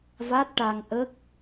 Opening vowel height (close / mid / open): open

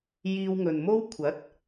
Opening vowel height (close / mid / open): close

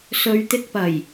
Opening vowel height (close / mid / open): mid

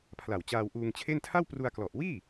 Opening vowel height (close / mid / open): open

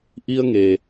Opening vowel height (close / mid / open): close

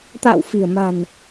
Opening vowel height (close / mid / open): open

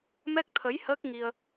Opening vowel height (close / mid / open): mid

